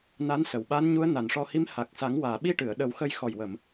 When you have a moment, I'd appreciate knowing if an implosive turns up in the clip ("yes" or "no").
yes